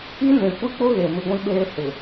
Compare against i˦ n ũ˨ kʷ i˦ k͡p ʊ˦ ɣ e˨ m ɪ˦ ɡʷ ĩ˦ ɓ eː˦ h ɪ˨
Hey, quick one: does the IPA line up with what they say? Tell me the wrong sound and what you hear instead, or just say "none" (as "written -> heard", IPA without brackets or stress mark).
none